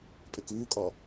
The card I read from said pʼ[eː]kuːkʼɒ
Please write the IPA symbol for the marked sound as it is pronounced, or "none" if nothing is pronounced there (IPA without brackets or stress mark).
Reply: e